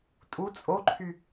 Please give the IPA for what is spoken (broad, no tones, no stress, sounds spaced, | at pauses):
tʼ u t͡sʼ o ǃʰ y